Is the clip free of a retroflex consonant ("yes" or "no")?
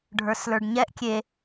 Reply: no